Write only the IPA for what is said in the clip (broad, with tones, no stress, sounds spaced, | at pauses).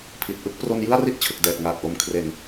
pʰ i˨˩ t̚ ʔ ɯ˥˩ k̚ p r o˧ n j ɯ˥˩ a̯ r i˥˩ t̚ t͡ɕʰ ɯ˨˩ k̚ d ɛː˨˩ t̚ ŋ aː˨˩ k̚ ʔ o˨˩ m kʰ r e˨˩ n